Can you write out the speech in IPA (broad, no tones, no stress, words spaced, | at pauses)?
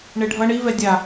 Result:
ɳeɖʱʌɳ i vɛdʲa